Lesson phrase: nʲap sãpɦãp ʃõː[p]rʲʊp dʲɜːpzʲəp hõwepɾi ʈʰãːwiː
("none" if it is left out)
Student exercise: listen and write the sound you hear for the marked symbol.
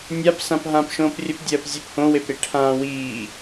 p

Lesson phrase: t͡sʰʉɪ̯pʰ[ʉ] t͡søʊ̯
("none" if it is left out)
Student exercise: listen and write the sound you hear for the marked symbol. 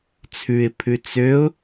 ʉ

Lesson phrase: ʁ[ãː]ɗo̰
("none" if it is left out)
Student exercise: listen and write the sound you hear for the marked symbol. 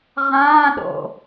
ãː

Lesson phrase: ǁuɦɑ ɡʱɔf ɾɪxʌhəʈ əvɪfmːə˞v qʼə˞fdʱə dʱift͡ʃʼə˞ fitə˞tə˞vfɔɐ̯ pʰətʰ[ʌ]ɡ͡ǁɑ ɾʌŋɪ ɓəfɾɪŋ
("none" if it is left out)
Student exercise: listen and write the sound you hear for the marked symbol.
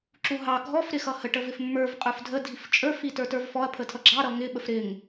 ʌ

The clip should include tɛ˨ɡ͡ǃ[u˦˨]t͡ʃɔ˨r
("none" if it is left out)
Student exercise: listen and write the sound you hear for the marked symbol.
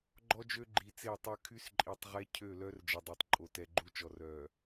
u˦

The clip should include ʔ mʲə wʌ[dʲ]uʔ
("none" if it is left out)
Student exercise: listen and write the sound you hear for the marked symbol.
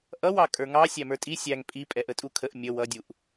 dʲ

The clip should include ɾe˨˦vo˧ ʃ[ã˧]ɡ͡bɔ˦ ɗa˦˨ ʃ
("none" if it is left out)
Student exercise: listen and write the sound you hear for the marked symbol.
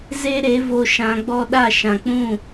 ã˧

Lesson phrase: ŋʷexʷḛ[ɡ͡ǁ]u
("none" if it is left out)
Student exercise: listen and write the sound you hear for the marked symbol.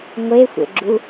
ɡ͡ǁ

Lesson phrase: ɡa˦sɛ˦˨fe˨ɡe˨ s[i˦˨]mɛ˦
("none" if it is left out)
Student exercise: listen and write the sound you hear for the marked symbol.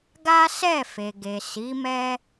i˨˦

